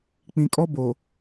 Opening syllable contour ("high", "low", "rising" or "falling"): low